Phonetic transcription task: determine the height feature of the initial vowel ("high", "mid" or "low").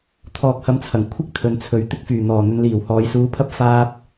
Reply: mid